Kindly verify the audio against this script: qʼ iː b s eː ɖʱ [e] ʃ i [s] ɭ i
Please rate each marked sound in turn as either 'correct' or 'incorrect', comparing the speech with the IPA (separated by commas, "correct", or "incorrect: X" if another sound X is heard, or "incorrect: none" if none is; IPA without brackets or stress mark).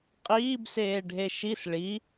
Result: correct, correct